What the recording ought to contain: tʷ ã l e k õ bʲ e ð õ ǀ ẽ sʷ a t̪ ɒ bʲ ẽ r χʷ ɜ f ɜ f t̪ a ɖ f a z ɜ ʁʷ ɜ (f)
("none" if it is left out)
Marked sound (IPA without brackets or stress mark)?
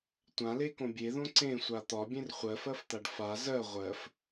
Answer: f